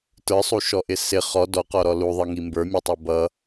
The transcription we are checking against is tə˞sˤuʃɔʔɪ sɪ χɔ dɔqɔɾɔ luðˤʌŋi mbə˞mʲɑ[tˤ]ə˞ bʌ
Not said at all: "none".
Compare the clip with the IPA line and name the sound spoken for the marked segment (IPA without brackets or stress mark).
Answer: tˤ